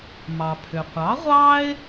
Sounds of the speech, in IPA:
mɑ˩pʰʏ˩ qʷɑ˩˥ ʁʷɑ˥ɪ̯

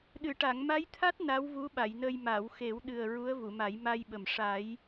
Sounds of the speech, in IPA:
ɗɨ˨˩˨ʈa˨˩˨ŋma˧˥jt̪ʰa˦˥t̚ na˧˥wvu˧˥ɓa˨˩˨jnə˧j maː˨˩˨wxe˨˩˦w ɗɨ˨˩ə̯ ɹu˧˥ə̯vu˨˩˨ma˨˩˦j ma˧jɓə˨˩m ʂa˨˩˦j

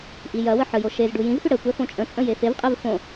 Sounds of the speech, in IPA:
ʔijɐwə ħəjo ʃez ɖujĩzfʏ ɽəkʷɛ fõt͡ʃʼə̃t͡sʼə̃ jefevqʼɛv fõ

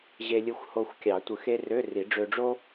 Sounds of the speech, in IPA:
ʑe˧lʲɯ˧xʷho˧xʷkʲɑ˨˩˦ tʷɯ˨˩xe˧ rø˧˥˧ ri˨˩˦ɖ͡ʐø˧ɖ͡ʐo˥

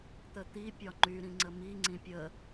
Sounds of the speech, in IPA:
t̪ət̪i pʲɒŋ͡ǃy ɾĩŋ͡ǀəmi ŋ͡ǀĩpʲə

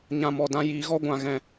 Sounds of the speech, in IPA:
ɲã˦mɔ˧dã˦ jiː˧ɣɔ˦ ɡʷã˧ɣɛ̃˧

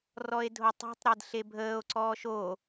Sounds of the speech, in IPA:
rɔe̯dʱotˤo̤tˤɾɛd ɬebʱəːo̯ǀɔːʃ o

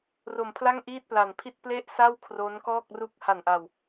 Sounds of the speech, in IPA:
ro˨˩mpʰla˥˩ŋ ʔiː˥˩t̚pla˨˩npʰi˥˩t̚ ple˥˩ʔ sa˥˩w kʰro˦˥nkɔː˥˩k̚ ru˦˥k̚ha˨˩nʔa˨˩w

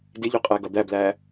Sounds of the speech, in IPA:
dɪʎʊ qʼæɡʌd̪æblæ

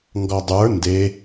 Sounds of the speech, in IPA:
ŋɡɔdˤə˞ nde

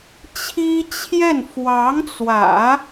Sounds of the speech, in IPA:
t͡ɕʰi˥t͡ɕʰjɛ˥˩n fwɑ˧˥ŋt͡swä̰˨˩˦

